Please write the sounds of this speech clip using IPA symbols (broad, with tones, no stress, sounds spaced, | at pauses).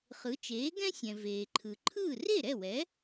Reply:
χ ɯ˩˥ t͡ʃ eː˩˥ ɡ ɛ̃˥ sʲ ɛ̃˩ v eː˩ ǃʰ ɯ˩ ǃʰ ɯː˥˩ r e˥˩ ɾ ɛ˥˩ w ɛ˩˥